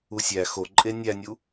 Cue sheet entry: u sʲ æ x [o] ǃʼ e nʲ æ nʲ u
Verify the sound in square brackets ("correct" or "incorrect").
correct